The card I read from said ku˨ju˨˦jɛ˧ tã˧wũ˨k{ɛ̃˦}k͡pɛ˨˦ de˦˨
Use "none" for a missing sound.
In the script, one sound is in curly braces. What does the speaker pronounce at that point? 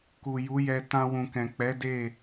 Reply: ɛ̃˨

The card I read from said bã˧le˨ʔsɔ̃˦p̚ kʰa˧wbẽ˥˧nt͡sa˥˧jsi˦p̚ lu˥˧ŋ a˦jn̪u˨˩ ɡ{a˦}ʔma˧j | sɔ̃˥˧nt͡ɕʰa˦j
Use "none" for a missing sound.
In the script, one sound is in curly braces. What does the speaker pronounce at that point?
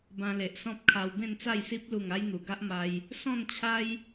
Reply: a˦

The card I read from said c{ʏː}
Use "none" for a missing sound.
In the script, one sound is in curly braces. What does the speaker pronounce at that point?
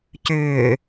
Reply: ʏː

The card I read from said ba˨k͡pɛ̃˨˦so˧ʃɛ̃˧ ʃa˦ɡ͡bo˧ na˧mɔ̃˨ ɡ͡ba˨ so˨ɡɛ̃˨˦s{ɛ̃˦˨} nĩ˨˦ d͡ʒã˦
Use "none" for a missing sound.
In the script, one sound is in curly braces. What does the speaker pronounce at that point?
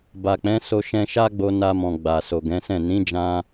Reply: ɛ̃˦˨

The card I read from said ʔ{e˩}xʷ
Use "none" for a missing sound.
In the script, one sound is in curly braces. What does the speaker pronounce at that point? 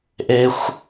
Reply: e˩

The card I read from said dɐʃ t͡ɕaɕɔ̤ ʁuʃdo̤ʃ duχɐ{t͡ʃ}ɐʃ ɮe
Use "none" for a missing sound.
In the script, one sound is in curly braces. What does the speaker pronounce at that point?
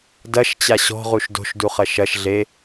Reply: ʃ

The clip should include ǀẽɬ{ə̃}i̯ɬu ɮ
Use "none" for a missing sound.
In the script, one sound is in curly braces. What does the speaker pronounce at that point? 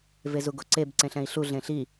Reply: ɛ̃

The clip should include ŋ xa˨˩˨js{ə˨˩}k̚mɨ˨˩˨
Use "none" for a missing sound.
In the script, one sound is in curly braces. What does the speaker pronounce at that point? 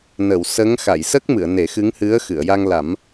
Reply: ə˦˥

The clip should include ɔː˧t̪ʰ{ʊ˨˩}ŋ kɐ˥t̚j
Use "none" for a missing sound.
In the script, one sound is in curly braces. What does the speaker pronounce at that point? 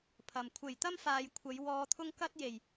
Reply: ʊ˥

